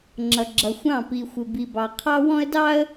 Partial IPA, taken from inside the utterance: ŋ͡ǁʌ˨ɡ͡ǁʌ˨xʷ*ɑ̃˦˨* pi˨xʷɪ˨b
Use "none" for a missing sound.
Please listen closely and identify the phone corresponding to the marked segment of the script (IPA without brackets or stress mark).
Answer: ɑ̃˦˨